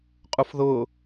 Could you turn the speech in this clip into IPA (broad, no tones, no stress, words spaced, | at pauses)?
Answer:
qʼufðʊː